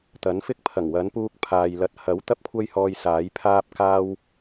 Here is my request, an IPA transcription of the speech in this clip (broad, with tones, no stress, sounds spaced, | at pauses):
t̪ ɐ˨˥ n f ɪ˥ k̚ pʰ ɐ˨˩ ŋ w ɐ˨˥ n p uː˧ k̚ pʰ aː˨ j l ɐ˧ t̚ h ɐ˨˥ w t̪ ɐ˥ p̚ kʷʰ ɐ˥ j h ɔː˧ j s aː˨˥ j pʰ aː˥ p̚ k aː˥ w